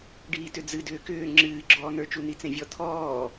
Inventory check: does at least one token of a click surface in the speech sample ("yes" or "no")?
yes